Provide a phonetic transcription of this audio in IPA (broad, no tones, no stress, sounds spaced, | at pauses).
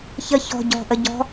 ç ə ç ɔ̤ ɟ ɔ̤ ʔ ə ɟ ɔ̤